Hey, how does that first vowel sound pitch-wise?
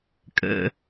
low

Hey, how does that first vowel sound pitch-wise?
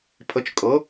rising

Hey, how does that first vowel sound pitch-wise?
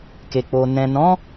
low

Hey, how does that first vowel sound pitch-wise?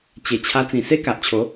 low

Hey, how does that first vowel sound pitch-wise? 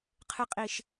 high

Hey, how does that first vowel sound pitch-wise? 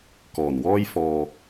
low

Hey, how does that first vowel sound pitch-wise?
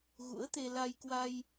rising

